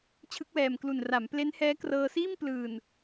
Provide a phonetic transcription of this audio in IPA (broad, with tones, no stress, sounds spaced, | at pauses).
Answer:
t͡ɕʰ ɯ˦˥ k̚ w ɛː˨˩ m k l u˨˩ n r a˩˦ m p l e˦˥ n h ɛː˦˥ k r ɤː˧ s iː˥˩ m p l ɯː˨˩ n